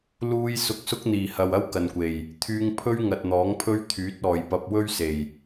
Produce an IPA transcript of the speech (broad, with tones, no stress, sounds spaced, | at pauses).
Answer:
l uː˧ j s ʊ˧ k̚ s ʊ˥ k̚ n̪ iː˨˩ h ɐ˨ w ɐ˥ w k ɐ˨ n kʷ e˨˩ j | t̪ʰ yː˧ ŋ pʰ ɵ˥ ɥ ŋ ɐ˨ t̚ n̪ ɔː˨˥ ŋ pʰ ɵ˥ ɥ t̪ʰ yː˨˥ t̚ ɔː˨ j p ɐ˧ p̚ w ɵ˥ ɥ s e˨˩ j